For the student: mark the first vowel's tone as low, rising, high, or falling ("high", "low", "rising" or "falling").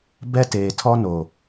high